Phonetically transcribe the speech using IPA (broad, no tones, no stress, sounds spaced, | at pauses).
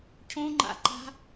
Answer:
cʰ õ ŋ͡ǃ a̰ ǃ a̤